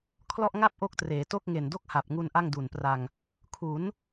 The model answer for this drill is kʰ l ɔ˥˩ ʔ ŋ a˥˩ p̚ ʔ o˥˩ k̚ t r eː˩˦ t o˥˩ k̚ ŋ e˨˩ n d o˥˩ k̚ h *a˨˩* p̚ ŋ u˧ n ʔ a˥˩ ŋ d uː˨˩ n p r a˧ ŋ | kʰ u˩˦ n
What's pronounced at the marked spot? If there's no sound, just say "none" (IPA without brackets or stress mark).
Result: a˨˩